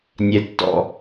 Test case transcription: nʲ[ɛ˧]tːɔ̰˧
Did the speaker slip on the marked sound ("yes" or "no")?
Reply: no